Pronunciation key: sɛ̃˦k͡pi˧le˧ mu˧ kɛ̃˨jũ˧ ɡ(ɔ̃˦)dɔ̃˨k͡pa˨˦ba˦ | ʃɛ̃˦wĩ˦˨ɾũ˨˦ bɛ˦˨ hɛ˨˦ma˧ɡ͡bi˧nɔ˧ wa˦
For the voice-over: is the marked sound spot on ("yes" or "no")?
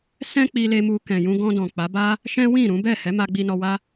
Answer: no